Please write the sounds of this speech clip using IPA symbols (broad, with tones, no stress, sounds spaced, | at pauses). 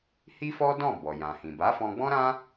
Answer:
h i˦ f ɔ˦ d ɔ̃˦˨ b ɔ˨ j ã˨ h ĩ˨ b a˨˦ f ɔ̃˧ ɡ͡b ɔ̃˦ ɾ ã˦